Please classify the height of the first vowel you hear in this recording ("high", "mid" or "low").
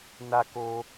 low